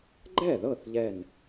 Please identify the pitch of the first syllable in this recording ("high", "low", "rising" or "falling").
falling